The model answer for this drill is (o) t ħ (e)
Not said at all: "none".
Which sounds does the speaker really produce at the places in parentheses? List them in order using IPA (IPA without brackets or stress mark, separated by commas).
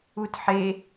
u, e